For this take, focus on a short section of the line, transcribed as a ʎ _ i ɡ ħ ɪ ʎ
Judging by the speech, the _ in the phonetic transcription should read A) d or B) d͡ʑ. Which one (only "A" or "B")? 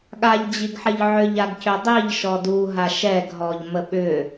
B